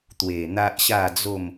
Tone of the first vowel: low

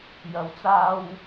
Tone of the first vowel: rising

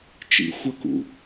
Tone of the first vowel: low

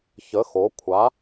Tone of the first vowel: rising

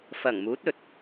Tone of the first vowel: low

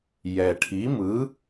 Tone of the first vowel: low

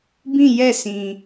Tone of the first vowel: falling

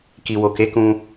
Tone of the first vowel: low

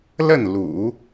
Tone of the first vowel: falling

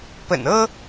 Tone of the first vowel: low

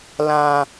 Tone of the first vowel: low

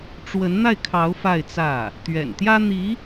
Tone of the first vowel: rising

